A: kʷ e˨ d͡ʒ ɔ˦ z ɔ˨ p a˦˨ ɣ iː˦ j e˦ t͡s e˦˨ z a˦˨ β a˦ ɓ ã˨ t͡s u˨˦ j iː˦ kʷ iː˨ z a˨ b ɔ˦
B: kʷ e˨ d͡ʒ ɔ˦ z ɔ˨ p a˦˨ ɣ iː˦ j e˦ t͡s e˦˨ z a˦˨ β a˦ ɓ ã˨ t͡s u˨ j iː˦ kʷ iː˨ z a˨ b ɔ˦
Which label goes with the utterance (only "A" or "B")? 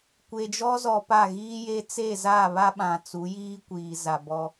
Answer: A